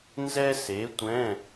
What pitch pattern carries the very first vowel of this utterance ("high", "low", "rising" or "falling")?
high